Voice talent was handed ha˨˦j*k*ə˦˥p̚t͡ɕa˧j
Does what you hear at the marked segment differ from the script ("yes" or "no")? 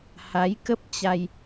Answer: no